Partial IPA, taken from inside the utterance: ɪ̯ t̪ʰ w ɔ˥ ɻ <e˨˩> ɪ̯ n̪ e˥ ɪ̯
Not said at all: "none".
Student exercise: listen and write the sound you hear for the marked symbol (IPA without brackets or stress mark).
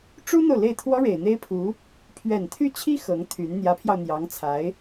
e˨˩